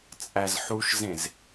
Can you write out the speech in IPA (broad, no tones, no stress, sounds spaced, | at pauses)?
t͡sʼ æ z ħ u ʃ z ẽ z